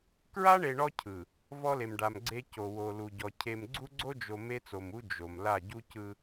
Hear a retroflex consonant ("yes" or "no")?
yes